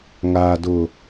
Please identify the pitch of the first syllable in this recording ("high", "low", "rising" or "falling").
low